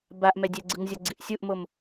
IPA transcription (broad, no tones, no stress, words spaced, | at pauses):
baʔmɛdʲɛɡ͡ǀɯŋ zʲʌɡ͡ǀiʔsʲuʔmom